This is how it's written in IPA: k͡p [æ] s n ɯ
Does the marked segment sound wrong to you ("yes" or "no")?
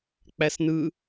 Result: no